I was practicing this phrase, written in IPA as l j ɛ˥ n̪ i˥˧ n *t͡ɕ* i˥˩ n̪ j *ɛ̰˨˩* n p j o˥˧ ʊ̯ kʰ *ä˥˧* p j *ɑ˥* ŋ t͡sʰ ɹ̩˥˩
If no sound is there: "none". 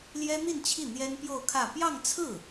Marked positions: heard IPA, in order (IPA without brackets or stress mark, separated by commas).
t͡ɕʰ, ɛ˥, ä˥˧, ɑ˥˧